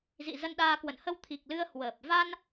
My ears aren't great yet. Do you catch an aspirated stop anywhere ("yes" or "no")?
yes